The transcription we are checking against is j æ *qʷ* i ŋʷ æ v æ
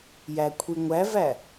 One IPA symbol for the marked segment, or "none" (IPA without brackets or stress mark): kʷʰ